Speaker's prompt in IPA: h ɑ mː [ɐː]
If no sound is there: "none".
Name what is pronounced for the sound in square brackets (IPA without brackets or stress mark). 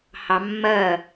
ɐː